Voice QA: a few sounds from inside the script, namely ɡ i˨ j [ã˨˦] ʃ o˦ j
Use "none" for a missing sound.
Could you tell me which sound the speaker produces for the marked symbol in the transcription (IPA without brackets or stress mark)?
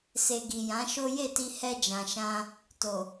ã˨˦